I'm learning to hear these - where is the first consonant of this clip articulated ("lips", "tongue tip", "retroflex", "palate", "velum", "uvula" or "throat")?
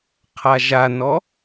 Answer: uvula